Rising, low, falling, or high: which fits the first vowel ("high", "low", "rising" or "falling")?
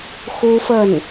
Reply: high